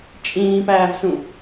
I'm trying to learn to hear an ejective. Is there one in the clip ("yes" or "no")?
yes